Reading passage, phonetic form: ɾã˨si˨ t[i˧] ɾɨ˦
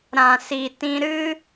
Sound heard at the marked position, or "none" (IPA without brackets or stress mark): ĩ˧